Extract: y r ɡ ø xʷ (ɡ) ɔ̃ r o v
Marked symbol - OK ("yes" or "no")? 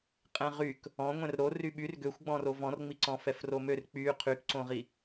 no